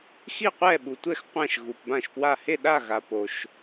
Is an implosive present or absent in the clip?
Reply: present